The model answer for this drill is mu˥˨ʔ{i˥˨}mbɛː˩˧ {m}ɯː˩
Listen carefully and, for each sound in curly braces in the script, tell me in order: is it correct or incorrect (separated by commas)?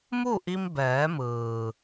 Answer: incorrect, correct